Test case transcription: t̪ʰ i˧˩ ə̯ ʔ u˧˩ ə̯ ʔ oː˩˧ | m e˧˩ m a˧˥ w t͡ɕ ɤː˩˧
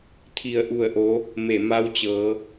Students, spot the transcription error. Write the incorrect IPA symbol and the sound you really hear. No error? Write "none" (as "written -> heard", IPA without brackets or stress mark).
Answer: oː˩˧ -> o˩˧